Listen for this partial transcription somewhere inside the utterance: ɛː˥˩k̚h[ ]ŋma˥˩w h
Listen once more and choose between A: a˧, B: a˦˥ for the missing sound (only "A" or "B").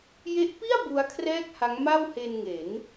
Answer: B